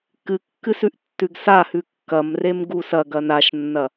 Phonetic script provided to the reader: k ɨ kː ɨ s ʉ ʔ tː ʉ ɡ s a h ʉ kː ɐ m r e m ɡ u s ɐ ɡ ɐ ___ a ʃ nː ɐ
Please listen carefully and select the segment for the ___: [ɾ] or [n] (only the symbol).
n